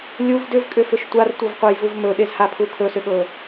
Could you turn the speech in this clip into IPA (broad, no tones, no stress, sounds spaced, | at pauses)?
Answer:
lʲ u v d ʏ v kʼ ʏ f ʏ ʃ tʷ a r tʷ ɤ v qʷ a j v u v m ɵ ɗ e z h a pʰ u kʰ ɵ s ʏ ɠ ɤ